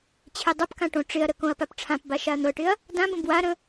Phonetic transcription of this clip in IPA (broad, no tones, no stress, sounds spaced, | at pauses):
t͡ɕʰ e dˤ ɤ p k ã ʈ õ ʈ͡ʂ ɪ ɐ̯ ɾ ə k õ ɐ̯ p a p ʈ͡ʂʰ ã p b a ʃ a ɐ̯ n̪ ɤ ʈ ɪ ɐ̯ | d ã b ə̃ b w a ɾ ə̃